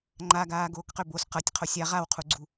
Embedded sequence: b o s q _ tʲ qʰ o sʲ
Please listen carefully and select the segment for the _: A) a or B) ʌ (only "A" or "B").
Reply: B